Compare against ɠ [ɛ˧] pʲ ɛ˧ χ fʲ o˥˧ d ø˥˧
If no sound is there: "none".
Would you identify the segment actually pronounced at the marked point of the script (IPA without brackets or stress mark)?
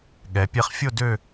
ɛ˩˧